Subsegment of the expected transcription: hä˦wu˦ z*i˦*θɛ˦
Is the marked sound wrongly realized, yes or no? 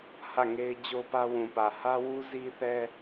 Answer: no